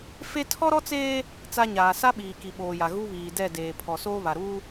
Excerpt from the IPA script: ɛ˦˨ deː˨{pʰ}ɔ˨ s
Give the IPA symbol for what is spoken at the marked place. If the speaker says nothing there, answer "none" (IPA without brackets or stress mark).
pʰ